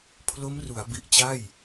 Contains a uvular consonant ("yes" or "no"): no